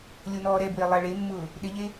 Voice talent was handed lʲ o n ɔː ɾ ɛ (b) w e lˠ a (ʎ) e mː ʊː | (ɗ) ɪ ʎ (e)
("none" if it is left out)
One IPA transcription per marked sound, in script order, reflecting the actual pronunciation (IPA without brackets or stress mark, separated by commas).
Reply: b, ɭ, ɗ, e